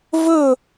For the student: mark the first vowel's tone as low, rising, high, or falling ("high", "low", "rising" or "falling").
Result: falling